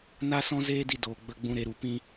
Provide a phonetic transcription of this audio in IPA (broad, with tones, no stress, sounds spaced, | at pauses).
n a˦ s ɔ̃˦ z eː˦ d i˧ d oː˨ ɡ͡b ə˧ ɡ͡b ũ˧ ɾ e˧ ɾ u˧ p ĩ˦